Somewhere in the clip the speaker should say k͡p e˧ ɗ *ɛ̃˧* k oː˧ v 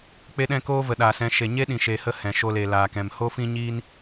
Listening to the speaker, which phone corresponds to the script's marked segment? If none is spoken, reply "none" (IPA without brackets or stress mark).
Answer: ɛ̃˧